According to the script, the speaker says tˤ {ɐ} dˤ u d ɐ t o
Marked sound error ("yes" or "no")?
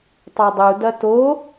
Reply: yes